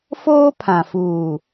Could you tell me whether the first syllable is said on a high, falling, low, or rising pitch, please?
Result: high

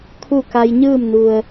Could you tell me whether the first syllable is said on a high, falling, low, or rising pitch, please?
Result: falling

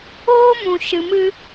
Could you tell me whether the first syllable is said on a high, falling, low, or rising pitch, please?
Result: high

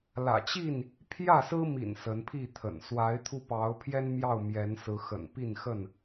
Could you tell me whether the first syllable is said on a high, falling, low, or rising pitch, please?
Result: low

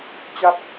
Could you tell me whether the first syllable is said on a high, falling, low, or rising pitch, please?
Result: falling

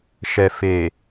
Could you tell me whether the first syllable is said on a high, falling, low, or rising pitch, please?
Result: low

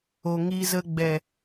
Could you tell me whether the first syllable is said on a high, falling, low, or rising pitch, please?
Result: low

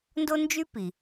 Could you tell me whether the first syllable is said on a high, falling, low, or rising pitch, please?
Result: high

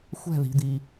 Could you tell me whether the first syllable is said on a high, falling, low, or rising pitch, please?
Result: falling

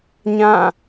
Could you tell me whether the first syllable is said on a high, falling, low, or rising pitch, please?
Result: falling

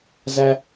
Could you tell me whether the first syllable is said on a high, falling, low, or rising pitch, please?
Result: low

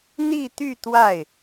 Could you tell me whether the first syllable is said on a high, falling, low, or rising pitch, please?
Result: falling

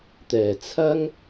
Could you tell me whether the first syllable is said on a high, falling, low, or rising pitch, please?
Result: low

